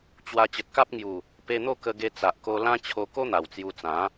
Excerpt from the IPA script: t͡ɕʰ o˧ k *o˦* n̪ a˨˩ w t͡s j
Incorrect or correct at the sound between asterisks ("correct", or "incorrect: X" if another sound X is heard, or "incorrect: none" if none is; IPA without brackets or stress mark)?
correct